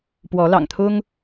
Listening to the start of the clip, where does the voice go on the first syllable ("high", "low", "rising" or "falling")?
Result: rising